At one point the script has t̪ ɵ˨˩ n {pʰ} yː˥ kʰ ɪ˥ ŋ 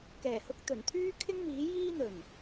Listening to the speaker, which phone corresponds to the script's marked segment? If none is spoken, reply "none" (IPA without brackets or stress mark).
t̪ʰ